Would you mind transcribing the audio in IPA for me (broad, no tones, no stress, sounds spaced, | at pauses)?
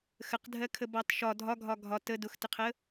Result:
x ə q dʱ ɜ kʰ ə b ɑ t ʃ ɒ dʱ ɒ ɡʱ ɒ ɡʱ ɒ t ə d ʊ x t ɪ qʰ ə